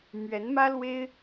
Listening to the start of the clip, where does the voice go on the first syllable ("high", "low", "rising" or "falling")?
rising